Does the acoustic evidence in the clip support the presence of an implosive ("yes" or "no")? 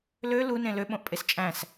yes